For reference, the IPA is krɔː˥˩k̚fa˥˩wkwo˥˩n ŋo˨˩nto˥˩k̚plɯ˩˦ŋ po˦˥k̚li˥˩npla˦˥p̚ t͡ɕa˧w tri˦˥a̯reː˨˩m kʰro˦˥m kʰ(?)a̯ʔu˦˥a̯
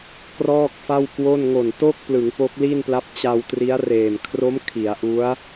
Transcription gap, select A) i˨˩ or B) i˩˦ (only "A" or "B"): B